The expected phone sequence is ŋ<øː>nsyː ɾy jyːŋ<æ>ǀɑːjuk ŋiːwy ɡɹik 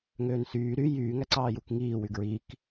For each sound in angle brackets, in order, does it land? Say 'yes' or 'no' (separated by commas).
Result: yes, yes